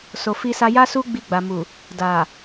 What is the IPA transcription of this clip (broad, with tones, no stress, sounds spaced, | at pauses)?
s o˨ f i˧ s a˧ j a˦ s u˦ ɡ͡b i˧ ɡ͡b a˨ m u˨ | d a˨